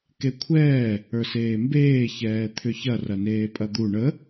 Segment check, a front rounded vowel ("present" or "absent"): present